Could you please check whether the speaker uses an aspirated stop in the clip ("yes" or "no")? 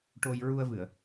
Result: no